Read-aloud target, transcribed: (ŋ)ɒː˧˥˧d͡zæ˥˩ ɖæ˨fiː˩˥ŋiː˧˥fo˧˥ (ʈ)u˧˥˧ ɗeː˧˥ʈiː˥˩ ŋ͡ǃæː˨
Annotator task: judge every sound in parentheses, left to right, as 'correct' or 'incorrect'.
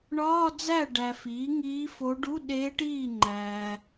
incorrect, incorrect

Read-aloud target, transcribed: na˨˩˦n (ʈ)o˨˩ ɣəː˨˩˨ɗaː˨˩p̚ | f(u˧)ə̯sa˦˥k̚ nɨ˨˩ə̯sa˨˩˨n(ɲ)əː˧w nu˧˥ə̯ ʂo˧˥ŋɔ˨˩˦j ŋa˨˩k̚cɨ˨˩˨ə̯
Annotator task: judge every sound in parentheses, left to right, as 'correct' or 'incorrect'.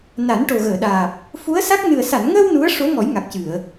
correct, incorrect, incorrect

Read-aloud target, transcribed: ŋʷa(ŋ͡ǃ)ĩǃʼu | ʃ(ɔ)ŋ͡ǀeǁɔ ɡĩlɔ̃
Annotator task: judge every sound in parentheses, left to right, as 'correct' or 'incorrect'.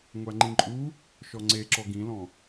correct, correct

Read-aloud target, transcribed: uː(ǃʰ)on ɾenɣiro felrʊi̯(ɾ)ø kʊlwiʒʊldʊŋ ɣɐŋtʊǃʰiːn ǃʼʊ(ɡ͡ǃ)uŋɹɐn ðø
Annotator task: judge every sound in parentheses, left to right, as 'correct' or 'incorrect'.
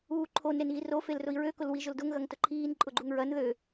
correct, incorrect, correct

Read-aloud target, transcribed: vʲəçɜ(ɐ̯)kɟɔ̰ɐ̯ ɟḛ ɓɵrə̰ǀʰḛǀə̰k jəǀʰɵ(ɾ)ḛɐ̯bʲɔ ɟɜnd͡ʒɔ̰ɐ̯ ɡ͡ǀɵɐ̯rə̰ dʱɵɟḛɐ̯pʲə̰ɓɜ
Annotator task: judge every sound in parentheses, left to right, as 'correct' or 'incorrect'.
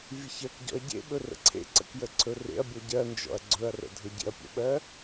incorrect, incorrect

